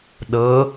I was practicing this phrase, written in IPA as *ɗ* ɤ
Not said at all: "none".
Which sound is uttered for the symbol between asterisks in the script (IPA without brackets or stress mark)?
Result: ɗ